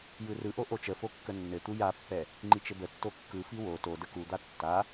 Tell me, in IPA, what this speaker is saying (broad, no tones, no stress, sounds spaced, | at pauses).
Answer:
j ɯ r ɯ ʔ o ʔ o t͡ʃ ə f o kː ə nː ɘ t̪ u j a pː ɛ | ŋ͡ǃ i t͡ʃ ɘ b ə tː o kː ɯ f i w o t o d ə k u d̪ a tː a